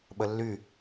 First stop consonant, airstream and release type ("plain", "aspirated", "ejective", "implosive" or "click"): implosive